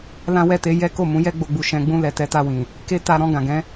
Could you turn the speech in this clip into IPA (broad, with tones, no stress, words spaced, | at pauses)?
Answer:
lã˦wɛ˦˨te˧ jɛ˦ko˦˨mũ˨˦jɛ˦ ɡ͡bo˧ɡ͡bu˧ʃɛ̃˧ ɡ͡bũ˧lɛ˨ tɛ˨˦ta˧wĩ˨ | ke˦ta˧ ɾɔ̃˧ɡã˨ɡɛ̃˨˦